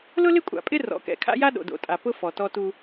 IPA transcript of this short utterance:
lʊ˦lɪ˦kʷʼa̰˨ pʼɪ˦ rɔ̰˨˦kɛ̰˨ kʰa̰˦ja˦ ɗo̰˨do̰˨tʼa˨ pʊ˦ fɔ˨tɔ˦tu˦

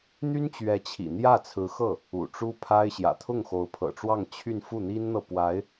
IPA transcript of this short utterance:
n̪y˥nt͡ɕɥɛ˧˥t͡ɕʰḭ˨˩n̪jä˥˩ t͡sʰɹ̩˧˥xɤ˥˩ | ṵ˨˩ʈ͡ʂu˥pʰa˥ɪ̯ ɕjä̰˨˩ t̪ʰʊ˥˩ŋxo˧˥ʊ̯pʰɤ̰˨˩ʈ͡ʂwɑ˥˧ŋ t͡ɕʰy˥˧nfu˥˩n̪i˥nn̪ɤ˨ pwa˧˥ɪ̯

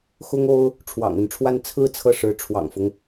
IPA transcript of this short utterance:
xʊ˥ŋo˥ʊ̯ | ʈ͡ʂʰwɑ̰˨˩ŋə˥˧nʈ͡ʂʰwa˥˧n t͡sʰɹ̩˥˧ t͡sʰɤ˥˩ʂɻ̩˧˥ ʈ͡ʂʰwɑ̰˨˩ŋfʊ˦ŋ

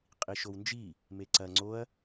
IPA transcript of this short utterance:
qʼiʃownd͡ʒi | meǀɐ ŋ͡ǀoɐ̯

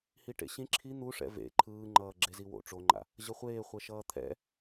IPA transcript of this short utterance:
hiʈḛɕĩ ǁʰi n̪uʂɛ̰ vḛ ǃʰɯːŋ͡ǃʌː ɡ͡ǁeziwo̰ ʈ͡ʂoŋ͡ǃa̰ | ʑʌχʷeːχʷɛ ʃʌːt̪ʰɛ̰

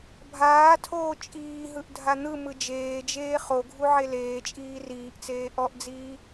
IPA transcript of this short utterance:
bʱaːtʰoː t͡ʃʼiːɦɯʔ dʱan̪ɯmɯ d͡ʒeːd͡ʒeː χoɡʱu ʕeleːt͡ʃʼiː riːʔt͡seː ʔɔʔd͡ziː

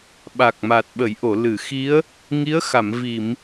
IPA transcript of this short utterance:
ɓa˨˩k̚ma˨˩t̚ ɓə˨˩˦jʔo˨˩˨ lɨ˨˩˨xi˧˥ə̯ | ŋi˧˥ə̯ xa˨˩˨mvi˨˩˨m

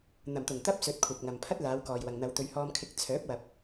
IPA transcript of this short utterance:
n̪ɐ˨˩mt̪ʊ˨˩ŋ t̪ɐ˥p̚sɵ˨˥t̚kʷʰɐ˨p̚ ŋɐ˨mpʰɐ˥t̚ laː˨˧wkɔː˨jwɐ˨ŋn̪ɐ˨˧w t̪ɵ˨˧ɥhɔː˧mkʰɪ˧k̚ t͡sʰœː˨˥p̚wɐ˨p̚

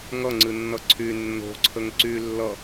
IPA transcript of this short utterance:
ŋʌŋ͡ǀɨnːʌ ǀʰy nːo̤ǀʰəŋ ǀy lːʌ

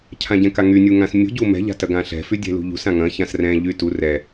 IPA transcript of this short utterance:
cʰãɟɛ̃kaŋy nʲuŋãsmʲṳ ɟumɛ̤ ʎa̤tɐɡãɬɛ̤ fydʲɛ̤lṳʎṳs ãŋɐ̃ çãsrɛ̃ ʎytu rɛ

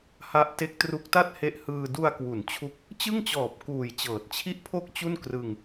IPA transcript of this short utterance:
ha˦˥ʔte˦˥k̚tru˦˥k̚ta˥˩t̚ he˦˥ʔ hɯː˧ du˧a̯kwu˩˦n t͡ɕʰu˦˥k̚ | t͡ɕɯ˥˩ŋt͡ɕɔː˨˩p̚ kuː˨˩j t͡ɕɤː˨˩t̚t͡ɕʰi˥˩ʔpʰo˥˩k̚t͡ɕu˥˩n krɯ˧ŋ

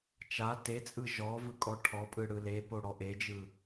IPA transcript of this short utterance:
t͡ʃa tet͡sʼɯ ʒɔ vɯkʼɔʈʰɔpʼɯ ɽɯlepo ɽɔʔed͡ʒɯ

